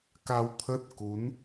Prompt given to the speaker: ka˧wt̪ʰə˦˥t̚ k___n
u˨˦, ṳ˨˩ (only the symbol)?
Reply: u˨˦